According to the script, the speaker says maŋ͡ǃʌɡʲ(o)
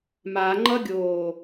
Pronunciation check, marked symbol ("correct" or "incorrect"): incorrect